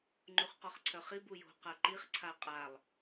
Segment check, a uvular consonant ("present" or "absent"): present